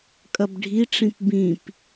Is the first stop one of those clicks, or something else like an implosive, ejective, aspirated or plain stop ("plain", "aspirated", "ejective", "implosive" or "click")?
ejective